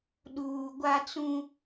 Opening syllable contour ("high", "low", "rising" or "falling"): low